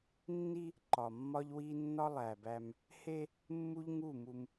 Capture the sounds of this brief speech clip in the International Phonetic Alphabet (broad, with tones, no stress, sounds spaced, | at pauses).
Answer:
nː i˦ | ǃ ɒ˨ mː ɒ˦ ʎ w i˦ nː ɒ˦ lˠ æ˨ b æ˦ m | h e˦ | mː u˦ ʎ ŋ u˦˨ m u˦ m